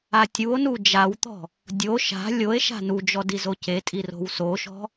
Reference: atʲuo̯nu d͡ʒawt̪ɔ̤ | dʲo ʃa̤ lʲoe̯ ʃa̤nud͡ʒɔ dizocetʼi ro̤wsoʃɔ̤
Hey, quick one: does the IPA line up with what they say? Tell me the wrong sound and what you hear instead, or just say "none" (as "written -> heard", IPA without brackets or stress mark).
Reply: none